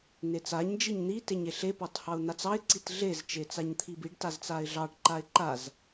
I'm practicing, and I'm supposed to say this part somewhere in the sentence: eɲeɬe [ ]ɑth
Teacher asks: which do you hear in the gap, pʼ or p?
p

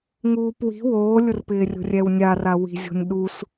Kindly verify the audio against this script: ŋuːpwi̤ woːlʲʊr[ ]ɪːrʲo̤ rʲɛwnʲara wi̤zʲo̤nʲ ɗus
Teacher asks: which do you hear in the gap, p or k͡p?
p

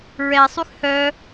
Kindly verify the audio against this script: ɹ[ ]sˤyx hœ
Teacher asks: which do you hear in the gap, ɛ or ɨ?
ɛ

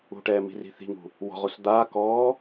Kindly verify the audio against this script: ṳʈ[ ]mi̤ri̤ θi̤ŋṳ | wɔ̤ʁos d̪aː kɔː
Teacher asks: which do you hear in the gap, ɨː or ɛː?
ɛː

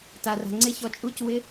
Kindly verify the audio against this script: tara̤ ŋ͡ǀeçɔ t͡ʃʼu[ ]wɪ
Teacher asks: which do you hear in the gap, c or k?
c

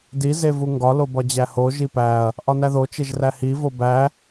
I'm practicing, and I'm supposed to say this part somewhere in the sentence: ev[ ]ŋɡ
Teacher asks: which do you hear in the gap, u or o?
u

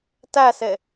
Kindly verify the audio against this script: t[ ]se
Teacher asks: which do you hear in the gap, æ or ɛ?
æ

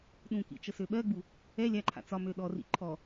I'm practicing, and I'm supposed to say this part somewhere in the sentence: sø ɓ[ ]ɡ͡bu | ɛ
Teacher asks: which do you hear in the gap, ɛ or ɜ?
ɜ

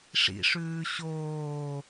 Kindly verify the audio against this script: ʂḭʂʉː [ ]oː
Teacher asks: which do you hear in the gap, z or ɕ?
ɕ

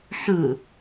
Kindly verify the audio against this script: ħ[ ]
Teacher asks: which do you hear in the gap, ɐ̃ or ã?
ɐ̃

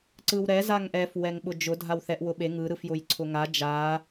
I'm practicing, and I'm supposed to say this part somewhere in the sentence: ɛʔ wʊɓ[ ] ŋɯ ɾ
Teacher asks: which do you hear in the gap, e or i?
e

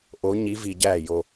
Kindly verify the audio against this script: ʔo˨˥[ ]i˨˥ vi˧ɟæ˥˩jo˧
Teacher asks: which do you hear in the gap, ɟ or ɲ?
ɲ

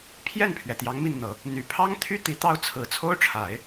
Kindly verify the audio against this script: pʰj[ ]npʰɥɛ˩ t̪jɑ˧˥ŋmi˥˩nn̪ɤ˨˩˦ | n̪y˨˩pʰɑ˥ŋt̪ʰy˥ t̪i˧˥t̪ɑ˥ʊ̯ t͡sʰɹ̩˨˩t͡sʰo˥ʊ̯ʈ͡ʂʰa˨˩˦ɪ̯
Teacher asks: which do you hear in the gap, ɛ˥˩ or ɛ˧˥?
ɛ˥˩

